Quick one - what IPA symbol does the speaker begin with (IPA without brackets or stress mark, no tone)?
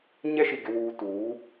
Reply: ɲ